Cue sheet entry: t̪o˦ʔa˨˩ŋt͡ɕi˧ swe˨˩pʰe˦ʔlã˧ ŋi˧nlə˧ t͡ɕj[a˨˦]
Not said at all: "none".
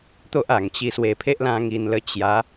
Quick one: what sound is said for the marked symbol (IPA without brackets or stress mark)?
a˨˦